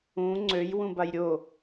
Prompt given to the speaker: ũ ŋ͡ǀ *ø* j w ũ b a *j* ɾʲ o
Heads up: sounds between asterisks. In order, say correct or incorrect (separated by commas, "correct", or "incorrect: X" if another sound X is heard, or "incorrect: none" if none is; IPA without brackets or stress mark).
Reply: correct, correct